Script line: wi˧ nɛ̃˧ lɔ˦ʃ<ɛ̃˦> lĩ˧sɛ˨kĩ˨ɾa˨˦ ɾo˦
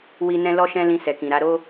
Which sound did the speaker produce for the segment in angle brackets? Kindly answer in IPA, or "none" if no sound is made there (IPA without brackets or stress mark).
ɛ̃˦